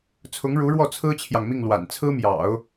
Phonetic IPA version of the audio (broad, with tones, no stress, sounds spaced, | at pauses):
t͡sʰ ʊ˧˥ ŋ ɻ u˧˥ ɻ w ɔ˥˩ t͡sʰ ɹ̩˥ t͡ɕʰ j ɑ˨ ŋ m i˥˩ ŋ l w a̰˨˩ n t͡sʰ ɹ̩˥ m j ɑ̰˨˩˦ ʊ̯